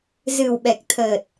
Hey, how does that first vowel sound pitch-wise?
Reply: low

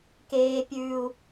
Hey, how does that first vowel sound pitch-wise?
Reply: high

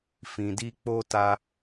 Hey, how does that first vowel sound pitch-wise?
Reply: low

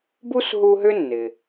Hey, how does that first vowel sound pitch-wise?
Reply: high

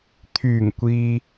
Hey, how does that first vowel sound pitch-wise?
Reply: low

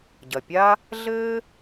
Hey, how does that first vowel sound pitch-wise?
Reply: low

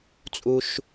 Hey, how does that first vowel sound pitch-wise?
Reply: high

